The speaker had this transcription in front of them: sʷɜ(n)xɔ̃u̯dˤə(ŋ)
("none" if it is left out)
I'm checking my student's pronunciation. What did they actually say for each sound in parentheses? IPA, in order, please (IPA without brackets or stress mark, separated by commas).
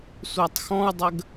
tˤ, ɡ